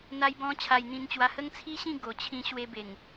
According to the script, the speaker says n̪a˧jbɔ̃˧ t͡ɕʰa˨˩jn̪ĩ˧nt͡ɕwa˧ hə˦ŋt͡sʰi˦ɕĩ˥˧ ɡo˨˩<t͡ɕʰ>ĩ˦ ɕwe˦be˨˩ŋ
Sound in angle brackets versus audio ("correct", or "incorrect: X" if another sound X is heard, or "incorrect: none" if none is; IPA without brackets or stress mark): correct